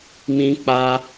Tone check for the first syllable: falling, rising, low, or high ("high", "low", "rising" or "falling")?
high